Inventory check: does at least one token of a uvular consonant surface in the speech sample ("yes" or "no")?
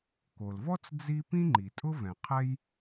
yes